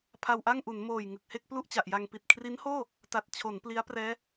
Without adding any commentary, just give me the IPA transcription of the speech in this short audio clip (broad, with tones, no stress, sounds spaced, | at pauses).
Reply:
pʰ a˧ w ʔ a˥˩ ŋ ʔ u˩˦ n m oː˨˩ j ŋ ɯ˨˩ k̚ h e˥˩ k̚ p l u˥˩ ʔ t͡ɕ a˨˩ ʔ j a˧ ŋ p i˨˩ t̚ kʰ r i˦˥ n h oː˥˩ | t a˨˩ t̚ t͡ɕʰ o˩˦ n p l i˦˥ a̯ p r ɛː˦˥